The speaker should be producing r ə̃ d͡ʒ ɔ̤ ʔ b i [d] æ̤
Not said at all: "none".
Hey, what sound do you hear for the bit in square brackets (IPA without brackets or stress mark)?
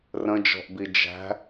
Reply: d͡ʒ